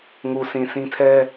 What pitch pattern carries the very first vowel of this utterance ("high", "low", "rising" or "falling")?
low